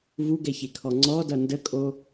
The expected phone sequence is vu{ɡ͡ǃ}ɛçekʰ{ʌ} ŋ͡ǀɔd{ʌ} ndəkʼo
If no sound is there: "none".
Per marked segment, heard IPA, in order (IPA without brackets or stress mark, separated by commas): ɡ, ɔ, ʌ